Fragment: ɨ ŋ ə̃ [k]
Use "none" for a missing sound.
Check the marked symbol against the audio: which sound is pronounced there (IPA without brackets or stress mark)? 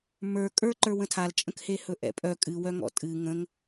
ŋ